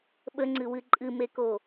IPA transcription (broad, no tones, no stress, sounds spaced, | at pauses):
ɓ ə ŋ͡ǀ ɨ w ɨ ǃʼ ɨ m e k o